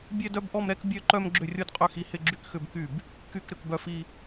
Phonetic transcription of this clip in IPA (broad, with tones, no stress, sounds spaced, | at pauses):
bʲ ɛ˥˧ d œ˥˧ b ʔ ɔ˥˧ m ɾ ɛ˥˧ k bʲ œ˥˧ ǃ œ˥˧ m ɡ͡ǁ ʏ˥˩ rʲ o˥˧ d qʼ ø˥˩ x i˥˧ h ɪ˥˧ ɡ͡ǁ y˥˧ k x ʏ˥˧ b k y˥˩ b | k y˥˩ k ɾ ʏ˥˩ k b œ˥˩ f i˥˧